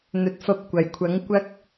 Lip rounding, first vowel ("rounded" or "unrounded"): rounded